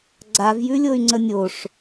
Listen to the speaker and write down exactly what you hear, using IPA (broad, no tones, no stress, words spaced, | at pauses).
ɡ͡ǀavjʉlʲoy̯ŋ͡ǀə nʲoʂ